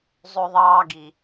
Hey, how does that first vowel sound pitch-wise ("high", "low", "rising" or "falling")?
high